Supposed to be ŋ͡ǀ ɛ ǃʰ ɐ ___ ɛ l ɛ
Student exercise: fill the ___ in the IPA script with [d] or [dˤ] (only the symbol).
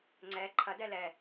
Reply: d